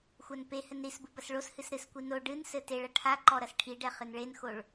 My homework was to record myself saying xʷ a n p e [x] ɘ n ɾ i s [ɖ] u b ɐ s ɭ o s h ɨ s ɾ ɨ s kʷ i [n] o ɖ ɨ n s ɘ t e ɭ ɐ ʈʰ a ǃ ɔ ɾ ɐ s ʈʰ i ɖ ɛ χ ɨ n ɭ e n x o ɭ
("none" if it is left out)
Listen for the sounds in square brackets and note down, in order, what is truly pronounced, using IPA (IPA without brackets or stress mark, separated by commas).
h, b, n